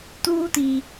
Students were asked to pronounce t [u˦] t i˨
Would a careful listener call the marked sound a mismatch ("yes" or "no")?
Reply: yes